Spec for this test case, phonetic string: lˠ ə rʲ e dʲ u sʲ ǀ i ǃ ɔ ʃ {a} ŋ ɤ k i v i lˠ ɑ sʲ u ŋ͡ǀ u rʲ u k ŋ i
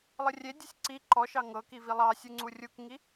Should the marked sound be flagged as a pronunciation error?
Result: yes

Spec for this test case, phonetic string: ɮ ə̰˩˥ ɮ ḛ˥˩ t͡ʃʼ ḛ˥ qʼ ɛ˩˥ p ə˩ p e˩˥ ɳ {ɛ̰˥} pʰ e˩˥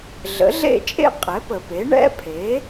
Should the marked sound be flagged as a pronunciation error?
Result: no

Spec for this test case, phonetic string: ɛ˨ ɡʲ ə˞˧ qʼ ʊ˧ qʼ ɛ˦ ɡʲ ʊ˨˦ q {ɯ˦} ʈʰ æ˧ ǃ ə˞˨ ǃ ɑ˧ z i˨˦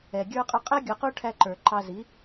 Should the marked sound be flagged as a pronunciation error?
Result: yes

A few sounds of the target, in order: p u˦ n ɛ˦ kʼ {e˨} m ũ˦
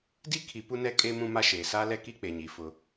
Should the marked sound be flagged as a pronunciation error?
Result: yes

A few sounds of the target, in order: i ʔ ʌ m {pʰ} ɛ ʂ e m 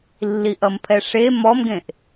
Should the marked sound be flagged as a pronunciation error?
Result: no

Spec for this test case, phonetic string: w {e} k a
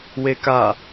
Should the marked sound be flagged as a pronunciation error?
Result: no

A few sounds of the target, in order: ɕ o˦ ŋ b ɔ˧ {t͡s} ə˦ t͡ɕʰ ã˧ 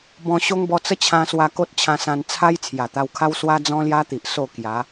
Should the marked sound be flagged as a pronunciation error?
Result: no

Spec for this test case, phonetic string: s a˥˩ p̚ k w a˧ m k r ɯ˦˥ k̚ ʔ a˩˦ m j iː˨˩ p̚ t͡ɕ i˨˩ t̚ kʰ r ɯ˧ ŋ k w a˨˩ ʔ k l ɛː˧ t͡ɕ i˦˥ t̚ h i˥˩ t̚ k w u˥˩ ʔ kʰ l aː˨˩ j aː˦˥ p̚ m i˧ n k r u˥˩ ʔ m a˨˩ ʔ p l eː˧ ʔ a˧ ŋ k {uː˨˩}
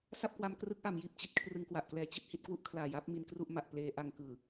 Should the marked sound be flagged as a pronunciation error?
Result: yes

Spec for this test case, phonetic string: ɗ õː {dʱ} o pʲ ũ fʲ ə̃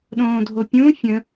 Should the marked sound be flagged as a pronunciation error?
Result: no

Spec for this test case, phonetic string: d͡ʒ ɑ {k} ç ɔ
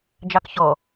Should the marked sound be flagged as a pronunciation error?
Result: no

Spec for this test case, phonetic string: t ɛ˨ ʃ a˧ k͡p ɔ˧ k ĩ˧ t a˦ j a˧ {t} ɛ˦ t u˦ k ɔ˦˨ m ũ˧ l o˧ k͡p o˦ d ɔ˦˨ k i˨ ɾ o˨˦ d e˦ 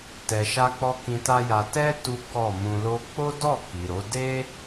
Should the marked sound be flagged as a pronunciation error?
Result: no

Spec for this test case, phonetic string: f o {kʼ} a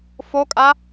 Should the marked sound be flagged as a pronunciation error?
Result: no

